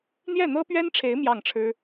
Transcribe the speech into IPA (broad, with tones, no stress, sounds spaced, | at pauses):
n̪ j ɛ˥˩ n̪ ɤ˥ p ɥ ɛ˥ n ʈ͡ʂʰ e˧˥ ɪ̯ m j ɑ˥˩ ŋ ʈ͡ʂʰ ɻ̩˥